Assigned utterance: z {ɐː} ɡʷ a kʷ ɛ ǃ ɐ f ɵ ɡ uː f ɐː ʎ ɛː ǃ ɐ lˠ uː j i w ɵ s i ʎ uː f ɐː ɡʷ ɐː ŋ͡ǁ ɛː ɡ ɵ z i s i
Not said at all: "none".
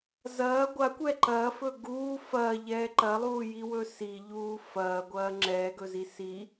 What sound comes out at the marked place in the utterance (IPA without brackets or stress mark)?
ɐː